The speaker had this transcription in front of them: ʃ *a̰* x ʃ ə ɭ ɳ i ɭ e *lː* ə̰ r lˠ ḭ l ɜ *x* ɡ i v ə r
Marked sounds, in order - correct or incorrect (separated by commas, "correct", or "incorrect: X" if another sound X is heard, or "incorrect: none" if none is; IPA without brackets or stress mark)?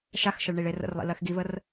incorrect: a, incorrect: r, correct